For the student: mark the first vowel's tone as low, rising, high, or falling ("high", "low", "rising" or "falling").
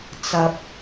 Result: high